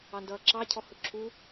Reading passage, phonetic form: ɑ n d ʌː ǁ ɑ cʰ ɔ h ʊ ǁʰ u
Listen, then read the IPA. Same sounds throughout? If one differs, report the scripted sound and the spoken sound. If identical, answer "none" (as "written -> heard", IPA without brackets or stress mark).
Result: none